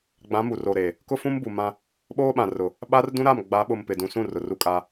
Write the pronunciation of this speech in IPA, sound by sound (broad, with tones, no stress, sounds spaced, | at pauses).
ɡ͡b ã˨˦ m u˨ r o˨ ɾ e˨ | k ʊ˦ f ũ˦ m b u˨ m ã˦ | ɓ oː˦ ɓ ã˨ r ʊ˨ | ɓ a˦ r d ũ˦ ɾ a˦˨ m ɡ͡b a˨˦ ɓ ʊ˨ m p ɪ˨ d ũ˨ s ũ˦˨ r ʊ˨ r u˦ kʼ a˦